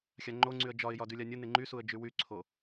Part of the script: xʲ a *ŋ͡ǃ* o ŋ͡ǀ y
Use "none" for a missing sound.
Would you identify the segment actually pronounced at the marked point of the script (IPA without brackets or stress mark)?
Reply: ŋ͡ǃ